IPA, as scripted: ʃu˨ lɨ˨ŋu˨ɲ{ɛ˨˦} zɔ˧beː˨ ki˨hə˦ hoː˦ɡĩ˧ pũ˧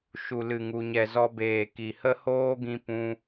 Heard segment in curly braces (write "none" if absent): ɛ˨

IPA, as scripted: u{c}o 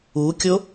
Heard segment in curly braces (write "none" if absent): kʲ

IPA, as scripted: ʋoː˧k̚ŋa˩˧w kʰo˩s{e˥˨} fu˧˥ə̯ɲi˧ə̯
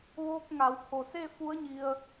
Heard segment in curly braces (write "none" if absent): e˥˨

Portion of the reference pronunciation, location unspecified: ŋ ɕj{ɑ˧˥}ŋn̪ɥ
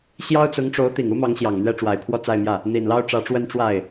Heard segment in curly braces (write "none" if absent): ɑ˨˩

